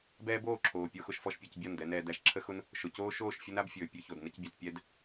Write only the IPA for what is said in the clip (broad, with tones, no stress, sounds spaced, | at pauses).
b ɛː˦ b oː˦˨ ǁʰ oː˨ pʲ o˧ x ʊ˧ ʃ f ɔ˦ ʃ pʲ ɔ˧ c bʲ ɒ˦˨ n d ɛ˧ n ɛː˧ d æ˧ ʃ ǁʰ ə˦ x ʊ˦ n | ʃ ʊ˨ c oː˦ ʃ oː˦˨ ʃ fʲ ʊ˦ n a˦ b fʲ ɵː˨ pʲ ɵ˧ ç o˨ d n ə˧ c bʲ a˨ t pʲ ɛ˦ d